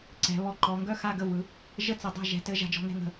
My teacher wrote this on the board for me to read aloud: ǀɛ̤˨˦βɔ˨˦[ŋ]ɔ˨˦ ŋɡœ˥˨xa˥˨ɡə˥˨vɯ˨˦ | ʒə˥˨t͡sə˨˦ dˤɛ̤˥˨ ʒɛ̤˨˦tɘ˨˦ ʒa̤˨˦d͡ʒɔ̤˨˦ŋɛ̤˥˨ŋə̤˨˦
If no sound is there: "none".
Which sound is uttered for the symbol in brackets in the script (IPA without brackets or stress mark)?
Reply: ǃ